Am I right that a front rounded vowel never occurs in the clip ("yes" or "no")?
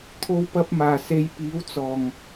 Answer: yes